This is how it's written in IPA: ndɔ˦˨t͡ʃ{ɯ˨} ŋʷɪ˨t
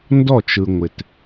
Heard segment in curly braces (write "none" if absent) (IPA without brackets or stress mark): ɯ˨